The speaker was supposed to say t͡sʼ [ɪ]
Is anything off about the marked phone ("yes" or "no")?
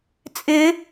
no